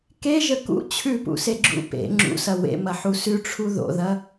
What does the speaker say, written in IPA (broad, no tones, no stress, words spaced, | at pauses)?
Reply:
keʒə kṵ t͡ɕʰʉpṵseɡ͡ǁṵ pḛ ŋ͡ǁṵsɐ wḛmɐħu sʉʈ͡ʂʰu ðo̰ðɐ